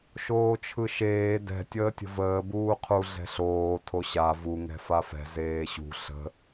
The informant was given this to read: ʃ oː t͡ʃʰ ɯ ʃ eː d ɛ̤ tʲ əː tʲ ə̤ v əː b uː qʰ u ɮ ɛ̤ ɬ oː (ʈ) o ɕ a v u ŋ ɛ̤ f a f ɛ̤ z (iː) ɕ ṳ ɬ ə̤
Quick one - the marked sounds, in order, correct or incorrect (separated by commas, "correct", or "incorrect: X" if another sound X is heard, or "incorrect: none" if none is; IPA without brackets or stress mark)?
incorrect: tʰ, incorrect: eː